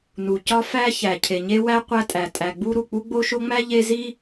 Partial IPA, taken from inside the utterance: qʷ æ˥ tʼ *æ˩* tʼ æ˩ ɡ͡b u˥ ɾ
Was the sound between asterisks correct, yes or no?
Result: yes